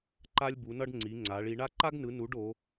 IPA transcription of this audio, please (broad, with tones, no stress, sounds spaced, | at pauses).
ǃ a˥ lʲ b u˨˦ n ʌ˥ ɖ ŋ͡ǀ i˨˦ ŋ͡ǀ a˨˦ ɭ i˨˦ ɳ a˥ ǃ a˥ ɡ n ɯ˨˦ n u˨˦ ɖ o˨˦